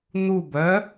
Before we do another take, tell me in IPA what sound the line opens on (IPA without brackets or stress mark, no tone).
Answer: n̪